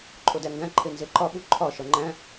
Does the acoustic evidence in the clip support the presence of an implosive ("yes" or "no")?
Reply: yes